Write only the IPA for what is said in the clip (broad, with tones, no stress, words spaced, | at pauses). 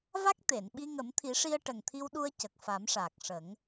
va˦˥k̚ t̪e˨˩˨nɓi˧ ŋə˨˩˦mt̪ʰi˨˩˦ʂi˧ə̯ ʈə˨˩ŋt̪ʰi˧wɗu˧ə̯ cə˨˩k̚ fa˨˩˦mʂaː˨˩k̚ʂə˨˩˦ŋ